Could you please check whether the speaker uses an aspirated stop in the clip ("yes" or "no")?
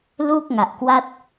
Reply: no